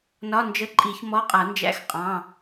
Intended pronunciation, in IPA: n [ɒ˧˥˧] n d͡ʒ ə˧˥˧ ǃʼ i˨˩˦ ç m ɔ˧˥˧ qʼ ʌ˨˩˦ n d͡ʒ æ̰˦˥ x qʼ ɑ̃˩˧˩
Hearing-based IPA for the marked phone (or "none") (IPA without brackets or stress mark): ɒ˧˥˧